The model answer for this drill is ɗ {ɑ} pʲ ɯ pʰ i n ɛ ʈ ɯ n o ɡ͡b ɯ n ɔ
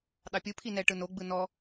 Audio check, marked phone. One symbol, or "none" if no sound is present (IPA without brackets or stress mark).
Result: ɑ